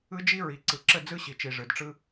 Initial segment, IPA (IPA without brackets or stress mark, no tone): ɯ